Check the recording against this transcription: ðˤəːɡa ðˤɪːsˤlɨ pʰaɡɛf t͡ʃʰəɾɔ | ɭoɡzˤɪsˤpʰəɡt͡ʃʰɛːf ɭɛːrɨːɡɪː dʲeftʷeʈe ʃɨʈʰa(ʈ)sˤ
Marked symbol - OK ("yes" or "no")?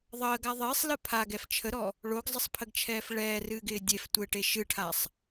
no